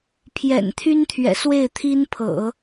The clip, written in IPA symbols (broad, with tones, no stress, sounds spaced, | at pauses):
pʰ j ɛ̰˨˩ n t̪ʰ y˥ n t̪ʰ ɥ ɛ̰˨˩ s w e˥˩ ɪ̯ t̪ʰ i˥ n pʰ ɤ̰˨˩˦